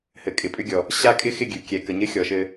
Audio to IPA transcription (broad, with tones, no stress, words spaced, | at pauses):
hɘ˨ kʼɪ˨pʼʏ˦ɡʲɔ˨ | ɕa˦ kʼɪ˦xɪ˦˨ ɡʲʉ˨kʲɛ˨ kə˨ɲɘ˦xʲɔ˨ ʃɘ˦